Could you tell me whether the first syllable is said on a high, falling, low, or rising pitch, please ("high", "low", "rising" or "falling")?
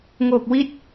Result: low